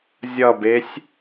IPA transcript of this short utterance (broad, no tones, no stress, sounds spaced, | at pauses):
zʲ ʌ b e sʲ